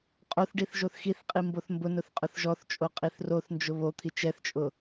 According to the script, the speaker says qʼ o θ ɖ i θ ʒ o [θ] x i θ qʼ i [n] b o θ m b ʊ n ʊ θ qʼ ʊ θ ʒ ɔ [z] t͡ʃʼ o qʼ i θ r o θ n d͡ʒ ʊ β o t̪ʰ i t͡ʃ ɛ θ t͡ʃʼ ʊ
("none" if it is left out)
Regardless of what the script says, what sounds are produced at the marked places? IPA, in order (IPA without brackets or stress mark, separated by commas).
θ, m, θ